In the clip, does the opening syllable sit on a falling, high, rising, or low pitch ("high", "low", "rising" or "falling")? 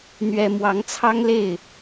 high